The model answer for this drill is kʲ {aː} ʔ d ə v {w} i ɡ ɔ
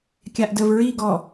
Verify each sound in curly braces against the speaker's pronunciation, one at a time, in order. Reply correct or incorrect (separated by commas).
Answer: incorrect, incorrect